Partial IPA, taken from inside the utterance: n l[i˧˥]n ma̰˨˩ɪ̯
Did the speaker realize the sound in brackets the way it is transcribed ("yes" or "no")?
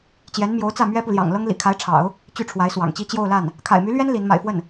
yes